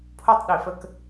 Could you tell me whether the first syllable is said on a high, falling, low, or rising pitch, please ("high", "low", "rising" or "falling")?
high